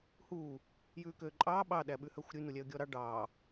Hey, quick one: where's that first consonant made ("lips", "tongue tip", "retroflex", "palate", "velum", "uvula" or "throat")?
throat